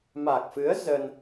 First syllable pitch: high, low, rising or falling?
low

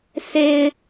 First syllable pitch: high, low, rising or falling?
low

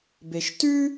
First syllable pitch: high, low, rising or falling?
low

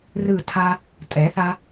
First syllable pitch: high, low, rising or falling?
falling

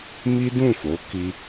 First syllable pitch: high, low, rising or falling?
high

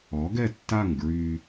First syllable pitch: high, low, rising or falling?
rising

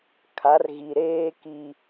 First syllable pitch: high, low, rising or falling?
rising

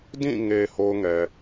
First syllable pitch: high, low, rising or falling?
falling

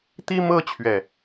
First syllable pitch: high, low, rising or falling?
high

